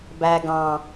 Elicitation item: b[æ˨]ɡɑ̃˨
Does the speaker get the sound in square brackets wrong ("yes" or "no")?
no